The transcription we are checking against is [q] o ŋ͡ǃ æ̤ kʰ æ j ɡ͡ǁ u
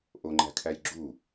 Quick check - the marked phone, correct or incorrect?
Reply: incorrect